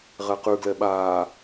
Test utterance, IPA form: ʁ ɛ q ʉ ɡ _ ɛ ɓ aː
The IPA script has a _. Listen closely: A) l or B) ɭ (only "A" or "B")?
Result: A